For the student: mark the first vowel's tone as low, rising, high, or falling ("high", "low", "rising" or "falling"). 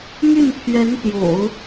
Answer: falling